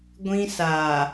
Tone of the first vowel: high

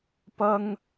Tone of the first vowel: high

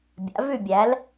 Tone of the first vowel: rising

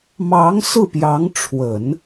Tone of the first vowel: rising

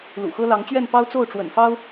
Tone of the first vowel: low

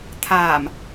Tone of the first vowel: low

